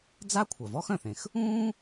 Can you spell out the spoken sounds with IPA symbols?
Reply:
d͡za˥kʷʰœ˩ vɔ˥xœ̃˩θẽ˩x | ũː˥

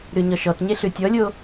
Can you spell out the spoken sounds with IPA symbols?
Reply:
ɾʉɲɔʃɔtɲe ɬʉtʲɔlʲo

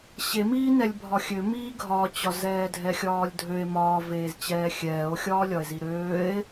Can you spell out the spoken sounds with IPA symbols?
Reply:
ɕemiːnɛlʲ bʱɒxʲømiː ɡʱɒt͡ɕɒ zɛːdʱɛxʲɒːlʲdʱøe̯ mɒːveːzt͡ɕɛː xʲɛːo̯xʲɒːlʲɒe̯zi ɾøːe̯

